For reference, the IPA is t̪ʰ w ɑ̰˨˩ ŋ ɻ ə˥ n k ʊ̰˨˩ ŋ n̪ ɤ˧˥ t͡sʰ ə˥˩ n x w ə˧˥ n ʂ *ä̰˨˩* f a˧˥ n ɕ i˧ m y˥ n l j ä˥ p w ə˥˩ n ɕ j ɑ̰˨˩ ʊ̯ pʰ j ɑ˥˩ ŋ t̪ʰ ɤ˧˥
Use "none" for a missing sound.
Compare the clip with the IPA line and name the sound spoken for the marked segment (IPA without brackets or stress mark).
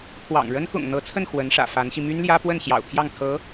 ä̰˨˩